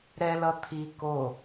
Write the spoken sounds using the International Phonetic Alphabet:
ɾ ɛ l ʌ t̪ʰ i k o

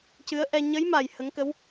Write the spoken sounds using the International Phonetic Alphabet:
c ɨ˧˥ ə̯ ʔ ɛ˧ ɲ ə˧˥ j m a˨˩ j h ə˧˥ ŋ k ə˧˥ w

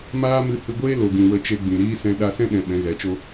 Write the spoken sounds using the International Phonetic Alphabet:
m aː˦ m ɨ˧ h ɨ˧ ɡʷ eː˦ l o˨ ɡ ĩ˨ w ə˧ t͡ʃ e˧ ɡ͡b ĩ˨ ɾ iː˦ s ɛ̃˧ ɗ a˧ s ɛ̃˦ ɗ ɛ̃˨ ɓ ɛ̃˨˦ ɣ ɛ˨˦ t͡ʃ o˦

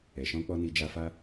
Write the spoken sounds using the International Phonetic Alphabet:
ɛ˨ ʃ ɔ̃˧ k͡p ɔ˧ n i˧ d͡ʒ a˧ f a˦

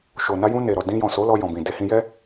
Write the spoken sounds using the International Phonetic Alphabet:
ʃ o˨ n a˧ j ũ˧ n e˨ ɾ ɔ˨ d ĩ˧ j ɔ̃˨ s o˨˦ l ɔ˧ j ɔ̃˨ b ĩ˨ d e˧ h ĩ˧ j ɛ˦

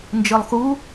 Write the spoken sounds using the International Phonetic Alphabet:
n d͡ʒ ɯ lˠ x u

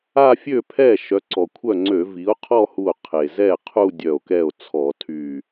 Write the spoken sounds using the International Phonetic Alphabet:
a˥˧ fʲ ø˥˩ pʰ ɛ˥˩ ʃ œ˩˥ ǀ ɔ˩ kʷʰ œ˥˩ ŋ͡ǀ ø˧˩˧ v i˩˥ o̯ qʰ ɔ˥˧ h u˧˩ o̯ qʰ e˩ z ɛ˥˩ qʰ u˥˧ dʲ œ˧˩ o̯ k ɛ˥˩ o̯ t͡sʰ ɔ˧˩˧ tʰ y˧˩

